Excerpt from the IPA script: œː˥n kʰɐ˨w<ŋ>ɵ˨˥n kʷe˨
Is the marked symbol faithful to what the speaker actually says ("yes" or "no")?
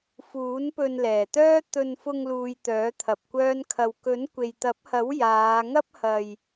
no